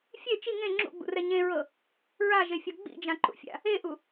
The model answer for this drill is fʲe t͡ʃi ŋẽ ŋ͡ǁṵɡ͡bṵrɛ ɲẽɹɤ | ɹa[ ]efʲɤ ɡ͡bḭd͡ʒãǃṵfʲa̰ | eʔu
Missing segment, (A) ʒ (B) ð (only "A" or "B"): A